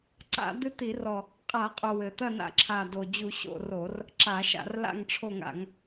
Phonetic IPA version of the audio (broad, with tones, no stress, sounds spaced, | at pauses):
ǀ a̰˧˩˧ d̪ ɨ˦˨ t̪ i˧˩˧ r ɔ˨˩ | qʼ a˧˩˧ qʼ o˨˩ w ɘ˨˩ t̪ ɐ˦˨ n a̰˧˩˧ ǁʰ a˨˩ d o˨˩ d͡ʑ u˧˩˧ ɕ o̰˦˨ r o˧˩˧ r | ǁ a˧˩˧ ʃ a̰˧˩˧ r l a̰˦˨ ŋ ʈ͡ʂʰ o˦˨ ŋ a̰˧˩˧ ŋ